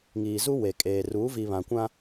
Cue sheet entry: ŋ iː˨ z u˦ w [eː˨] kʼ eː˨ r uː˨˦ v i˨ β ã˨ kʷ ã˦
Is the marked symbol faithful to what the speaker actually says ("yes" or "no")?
no